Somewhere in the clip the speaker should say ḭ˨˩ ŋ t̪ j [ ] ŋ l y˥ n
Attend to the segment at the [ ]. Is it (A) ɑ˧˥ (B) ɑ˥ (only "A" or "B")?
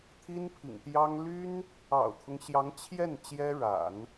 B